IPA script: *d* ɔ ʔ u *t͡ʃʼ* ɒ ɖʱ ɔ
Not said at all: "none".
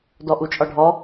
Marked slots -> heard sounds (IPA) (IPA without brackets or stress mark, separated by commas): d, t͡ʃʼ